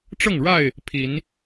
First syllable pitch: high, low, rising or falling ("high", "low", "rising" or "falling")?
falling